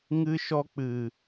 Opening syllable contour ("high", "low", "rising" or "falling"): high